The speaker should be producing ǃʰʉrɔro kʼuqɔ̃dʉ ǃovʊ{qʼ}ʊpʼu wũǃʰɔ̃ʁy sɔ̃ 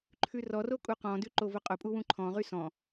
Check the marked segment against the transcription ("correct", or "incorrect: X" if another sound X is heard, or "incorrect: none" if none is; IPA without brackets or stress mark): correct